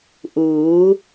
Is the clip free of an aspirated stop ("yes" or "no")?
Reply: yes